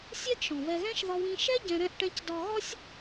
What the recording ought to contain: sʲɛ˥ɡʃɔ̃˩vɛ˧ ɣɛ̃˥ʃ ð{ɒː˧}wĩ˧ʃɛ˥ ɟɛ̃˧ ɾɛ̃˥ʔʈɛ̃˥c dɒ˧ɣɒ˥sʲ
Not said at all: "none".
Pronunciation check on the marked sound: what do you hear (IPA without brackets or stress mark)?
ɒ˧